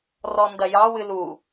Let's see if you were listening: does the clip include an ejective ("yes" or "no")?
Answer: no